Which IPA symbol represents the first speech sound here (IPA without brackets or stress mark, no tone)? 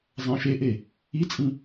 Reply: zˤ